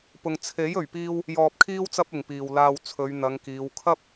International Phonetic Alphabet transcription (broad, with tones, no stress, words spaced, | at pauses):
pʊ˧ŋ t͡sʰe˨˥j ɵ˨ɥpiː˥w | jɔː˧p̚kʰiː˥w t͡sɐ˥p̚ɪ˨ŋpiː˨w laː˧w t͡sʰɵ˨˧ɥn̪ɐ˨˧ŋkiː˨˧w kʰɐ˥p̚